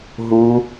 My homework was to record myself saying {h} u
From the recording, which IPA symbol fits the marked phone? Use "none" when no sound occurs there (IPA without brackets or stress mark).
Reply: ɦ